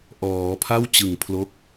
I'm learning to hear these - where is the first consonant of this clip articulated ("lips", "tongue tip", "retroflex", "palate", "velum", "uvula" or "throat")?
throat